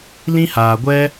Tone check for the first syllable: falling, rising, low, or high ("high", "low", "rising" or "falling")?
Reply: high